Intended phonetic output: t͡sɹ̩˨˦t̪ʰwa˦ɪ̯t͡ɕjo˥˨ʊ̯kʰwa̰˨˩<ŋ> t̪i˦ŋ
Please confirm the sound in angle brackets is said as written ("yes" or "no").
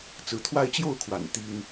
no